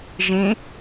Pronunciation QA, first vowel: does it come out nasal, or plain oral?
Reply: nasal